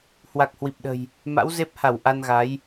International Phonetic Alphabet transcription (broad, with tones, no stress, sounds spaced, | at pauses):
h w a˨˩ k̚ h w i˨˩ p̚ ɗ ə̤˨˩ j | m a̰˧˥ w z e˦˥ p̚ h a˧˩ w ʔ a˧ n ɣ a˨˦ j